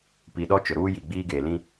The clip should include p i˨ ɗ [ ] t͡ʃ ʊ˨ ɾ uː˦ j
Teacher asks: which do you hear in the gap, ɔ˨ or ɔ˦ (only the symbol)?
ɔ˦